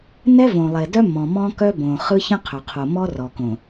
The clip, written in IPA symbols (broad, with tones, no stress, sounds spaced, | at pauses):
n ɛ˦ v õ˨ lˠ e˨ d œ˦ m ɔ̃˨ m ɔ̃˦ k œ˦ b õ˨ χ ɯ˦ ç ə̃˦ qʰ œ˨ qʰ o˨ m ɔ˦ r ɔ˨ k õ˨